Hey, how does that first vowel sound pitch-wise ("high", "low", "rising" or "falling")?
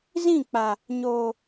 falling